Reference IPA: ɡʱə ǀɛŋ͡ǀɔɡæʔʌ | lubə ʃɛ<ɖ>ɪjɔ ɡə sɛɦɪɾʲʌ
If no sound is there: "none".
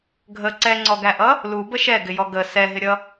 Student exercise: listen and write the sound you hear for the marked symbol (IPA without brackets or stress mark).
ɡ